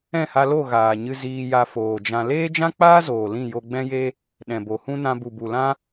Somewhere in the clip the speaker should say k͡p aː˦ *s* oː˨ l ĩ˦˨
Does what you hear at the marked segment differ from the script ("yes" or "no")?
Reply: yes